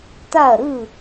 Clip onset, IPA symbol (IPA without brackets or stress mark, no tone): t